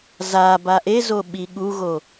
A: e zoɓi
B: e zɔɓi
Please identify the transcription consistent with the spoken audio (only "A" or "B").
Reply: A